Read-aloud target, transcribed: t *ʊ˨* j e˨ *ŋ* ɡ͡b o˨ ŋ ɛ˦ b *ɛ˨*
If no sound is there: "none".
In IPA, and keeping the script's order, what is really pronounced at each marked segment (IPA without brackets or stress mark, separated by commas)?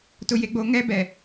ʊ˨, none, ɛ˨